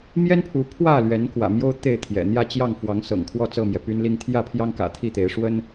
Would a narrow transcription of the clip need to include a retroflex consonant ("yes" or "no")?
yes